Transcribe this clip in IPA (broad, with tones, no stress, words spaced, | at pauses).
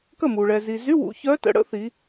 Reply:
kə˥˩mu˩ ɭɛ˩zi˩zy˧˥˧wṵ˩˧ çœ˧˥tə̰˩˧ɽə̰˧˥ θi˩˧